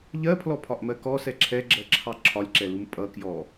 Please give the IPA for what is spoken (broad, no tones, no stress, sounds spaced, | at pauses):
ʎ ɜ pʰ l ɔ pʰ ɒ ʔ m ɜ k ɔ s ɛ ǁʰ ɛ ɡ͡ǁ ɜ ǁʰ ɑ ǁʰ ɒ lʲ ǁ ɛ l u m pʼ ʌ k j ɔ